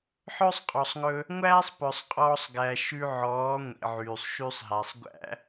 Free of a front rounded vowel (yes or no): no